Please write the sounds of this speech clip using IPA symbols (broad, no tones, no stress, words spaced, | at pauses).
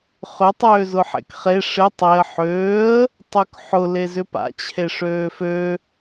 χʏ tˤøːzʊħḛkχe ʂɪ tˤeə̯ ħøːə̯ | tˤøkħʊ lezʏpa̰ t͡ɕʰeʂøːfø